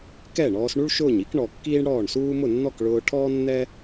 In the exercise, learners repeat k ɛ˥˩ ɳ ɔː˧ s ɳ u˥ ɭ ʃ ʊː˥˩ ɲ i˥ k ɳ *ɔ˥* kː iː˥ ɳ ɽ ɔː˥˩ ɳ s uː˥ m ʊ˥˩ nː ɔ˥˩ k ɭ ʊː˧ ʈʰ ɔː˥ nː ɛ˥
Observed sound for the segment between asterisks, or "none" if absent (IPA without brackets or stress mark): ɔ˩